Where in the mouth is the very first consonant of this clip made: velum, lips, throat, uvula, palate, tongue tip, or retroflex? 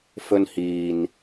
lips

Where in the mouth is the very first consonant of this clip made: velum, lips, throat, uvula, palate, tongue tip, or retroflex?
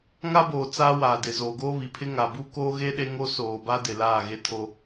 velum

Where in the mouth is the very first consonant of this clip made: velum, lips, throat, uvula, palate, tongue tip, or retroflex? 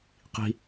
uvula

